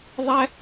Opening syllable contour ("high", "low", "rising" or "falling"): high